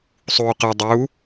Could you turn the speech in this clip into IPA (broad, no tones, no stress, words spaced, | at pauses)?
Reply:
sˤuːqɤ dˤu